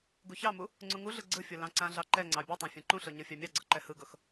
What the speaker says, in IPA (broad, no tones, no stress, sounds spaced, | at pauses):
ɡ u ç ɑ m u | ŋ͡ǀ ũ ŋ u ɮ ɯ ɡ͡ǀ ɯ fʲ ɤ l ɑ̃ ǀ ã ɮ ɑ ǃ ɛ ŋ͡ǀ ɑ bʲ ɯ tˤ ã fʲ ã ǃ ũ ɬ ɤ ɲ ɤ fʲ ɑ mʲ ɑ ɡ͡ǀ ɤ ǃ ɛ h ɯ ɡ ɤ x